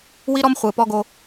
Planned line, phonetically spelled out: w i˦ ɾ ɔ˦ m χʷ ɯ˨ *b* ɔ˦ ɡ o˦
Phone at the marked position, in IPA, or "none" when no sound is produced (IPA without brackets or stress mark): p